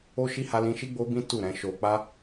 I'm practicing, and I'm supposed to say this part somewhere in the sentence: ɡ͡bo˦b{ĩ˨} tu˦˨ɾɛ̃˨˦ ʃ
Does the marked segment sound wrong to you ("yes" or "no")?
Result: yes